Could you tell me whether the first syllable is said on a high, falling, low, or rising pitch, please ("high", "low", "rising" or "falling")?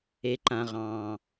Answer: low